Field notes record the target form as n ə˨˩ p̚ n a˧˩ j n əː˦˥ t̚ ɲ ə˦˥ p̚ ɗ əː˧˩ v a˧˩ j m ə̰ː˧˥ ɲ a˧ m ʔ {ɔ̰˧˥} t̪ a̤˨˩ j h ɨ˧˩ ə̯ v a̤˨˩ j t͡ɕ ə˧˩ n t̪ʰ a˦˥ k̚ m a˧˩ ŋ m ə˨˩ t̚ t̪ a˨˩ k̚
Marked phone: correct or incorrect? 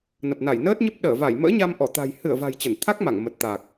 incorrect